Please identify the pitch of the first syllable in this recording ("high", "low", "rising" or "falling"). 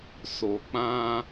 low